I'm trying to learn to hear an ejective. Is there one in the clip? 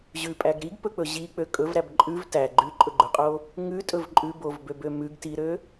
yes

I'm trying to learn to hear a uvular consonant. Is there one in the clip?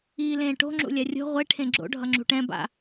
yes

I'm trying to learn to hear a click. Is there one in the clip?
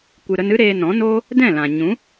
no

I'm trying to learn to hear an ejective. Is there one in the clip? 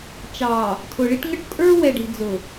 yes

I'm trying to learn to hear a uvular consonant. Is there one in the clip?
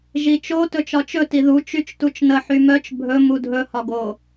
no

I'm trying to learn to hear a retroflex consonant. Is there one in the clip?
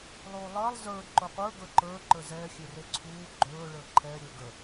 yes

